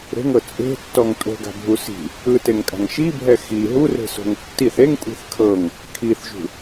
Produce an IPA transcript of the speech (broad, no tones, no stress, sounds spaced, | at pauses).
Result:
ɾ e̤ ŋ ɤ t͡sʼ e̤ tː ɔ ŋ tʼ o̤ ɡ a̤ bʱ u s i̤ | ɯ t e ŋ kʼ a̤ ŋ ʃ i bʱ ɛ x i ɦ u r e̤ s o̤ ŋ tː i θ e ŋ kʷʼ i̤ θ kʰ ɤ ŋ | kʰ i θ ʒ ṳ